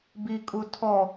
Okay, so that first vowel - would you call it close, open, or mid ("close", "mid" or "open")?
close